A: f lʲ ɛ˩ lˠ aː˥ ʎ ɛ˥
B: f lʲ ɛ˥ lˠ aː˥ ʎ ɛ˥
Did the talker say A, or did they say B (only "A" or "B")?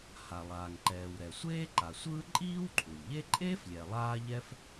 A